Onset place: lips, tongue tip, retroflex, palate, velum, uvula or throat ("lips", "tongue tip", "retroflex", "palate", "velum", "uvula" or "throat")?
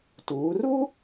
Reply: tongue tip